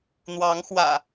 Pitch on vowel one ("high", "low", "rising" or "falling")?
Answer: rising